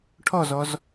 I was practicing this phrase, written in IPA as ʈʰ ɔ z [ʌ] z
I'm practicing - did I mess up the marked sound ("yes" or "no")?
yes